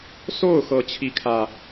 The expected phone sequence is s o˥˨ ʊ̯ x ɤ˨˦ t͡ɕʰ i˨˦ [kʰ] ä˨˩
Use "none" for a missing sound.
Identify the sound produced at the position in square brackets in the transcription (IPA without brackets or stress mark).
kʰ